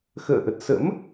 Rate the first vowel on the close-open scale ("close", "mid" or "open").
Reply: mid